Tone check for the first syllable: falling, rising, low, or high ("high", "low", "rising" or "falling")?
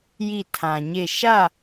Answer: falling